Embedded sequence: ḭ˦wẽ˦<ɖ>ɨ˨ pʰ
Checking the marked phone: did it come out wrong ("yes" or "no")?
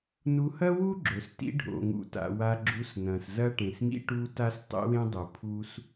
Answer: yes